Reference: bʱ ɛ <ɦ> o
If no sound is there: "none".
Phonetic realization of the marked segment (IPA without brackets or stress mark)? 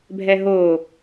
ɦ